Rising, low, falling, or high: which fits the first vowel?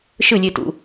falling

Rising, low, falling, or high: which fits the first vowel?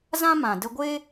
high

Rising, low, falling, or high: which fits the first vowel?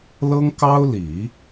high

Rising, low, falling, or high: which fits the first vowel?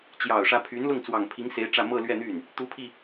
low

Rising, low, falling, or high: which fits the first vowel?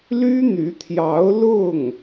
high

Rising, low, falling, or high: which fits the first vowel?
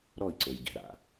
falling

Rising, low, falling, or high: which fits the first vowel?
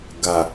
low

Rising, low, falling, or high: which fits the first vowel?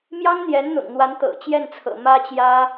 high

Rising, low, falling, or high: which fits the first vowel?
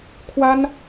high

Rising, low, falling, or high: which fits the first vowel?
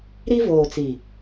high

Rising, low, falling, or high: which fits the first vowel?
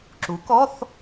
rising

